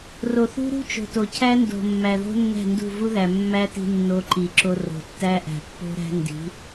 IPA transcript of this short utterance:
r o˨ θ ṳ˦ ɾ ṳ˦ t͡ʃ o̤˨ t o˨ cʰ æ˦ n d o̤˨ mː æ˨ ð o̤˦ nː æ̤˦˨ n d ṳ˦˨ v u˦ ð æ˨ mː æ˦ t i̤˧ nː o˧ ǃ i˨ ǁ o˧ r o̤˨ tː æ˦ ʔ æ̤˨ pː o̤˦ ɾ æ̤˦ n d i̤˨˦

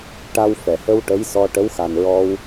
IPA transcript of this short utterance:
ʈ a˧ w f ɛ˨˩˨ h ə˧ w ʈ ə˧˥ j s ɔ˧ ʈ ə˧˥ w x a˨˩ n ɹ ɔ˧ w

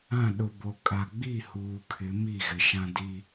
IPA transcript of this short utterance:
ã˦˨ ɗ ʊ˨ b o˨ kʼ a˨ ɡ͡b i˦˨ h uː˨ kʰ ɪ˨˦ m i˦˨ ɣ ɪ˨ ʃ ã˦ d i˦

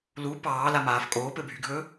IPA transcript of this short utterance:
l u p ɑː l a m aː f kʼ oː p ɘ bʱ y ɡʱ ɵː

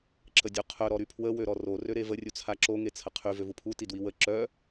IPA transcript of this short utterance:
ǁ ə dʲ u qʰ œ ɾ ɔ ɾ y pʰ w ə w ø ɾ ɔ r o r ø ɾ e v ə rʲ u t͡sʰ a ǁ o ŋ e t͡sʰ ə qʰ y v ø v u pʰ u t i d w i w ə ǁ œ

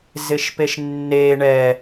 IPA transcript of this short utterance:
z ɪ ʃ p e ʃ nː e ɳ ɛ

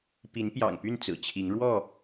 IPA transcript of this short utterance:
p i˨˦ n p j ɑ̰˨˩ ŋ p y˥˨ n t͡s ɹ̩˨˩ t͡ɕʰ i˨˦ ŋ ɻ w ɔ˥˨

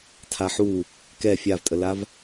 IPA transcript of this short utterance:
tʰ a ħ u | k ɛ fʲ a v tʼ ə l a v

